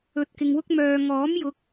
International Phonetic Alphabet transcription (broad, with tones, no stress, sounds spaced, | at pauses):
ɵ˧ t̚ k ɪ˧ ŋ w ʊ˥ k̚ m œː˧ ŋ ɔː˨˥ m j ʊ˨˥ k̚